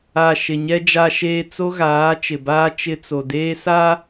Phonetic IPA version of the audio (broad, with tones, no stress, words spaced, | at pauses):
a˨ ʃɪ˨ɲɛ˦ d͡ʒa˦ʃeː˦ t͡so˦ɣaː˨˦ t͡ʃɪ˨baː˦ t͡ʃɪ˦t͡so˨ deː˦sa˦